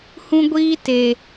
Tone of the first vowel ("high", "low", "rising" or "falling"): high